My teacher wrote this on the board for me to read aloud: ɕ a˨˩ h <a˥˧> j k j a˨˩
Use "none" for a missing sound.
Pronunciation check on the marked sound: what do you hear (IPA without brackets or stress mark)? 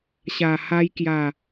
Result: a˧